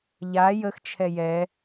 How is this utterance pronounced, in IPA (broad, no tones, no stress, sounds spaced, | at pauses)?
ʎ a j ə x t͡ʃʰ ɛ j ɛ